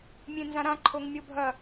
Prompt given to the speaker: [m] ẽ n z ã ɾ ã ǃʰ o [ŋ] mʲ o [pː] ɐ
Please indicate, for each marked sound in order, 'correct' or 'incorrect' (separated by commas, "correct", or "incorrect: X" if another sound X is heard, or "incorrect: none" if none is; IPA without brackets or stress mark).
incorrect: mʲ, correct, incorrect: bʱ